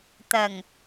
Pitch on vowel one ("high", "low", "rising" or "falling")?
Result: low